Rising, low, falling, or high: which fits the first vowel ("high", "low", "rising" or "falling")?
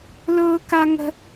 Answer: high